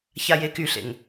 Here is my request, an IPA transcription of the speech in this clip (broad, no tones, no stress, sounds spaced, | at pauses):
ç a j e k y ɬ ḛ ŋ